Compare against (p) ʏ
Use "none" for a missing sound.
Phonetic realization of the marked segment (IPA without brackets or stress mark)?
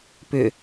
p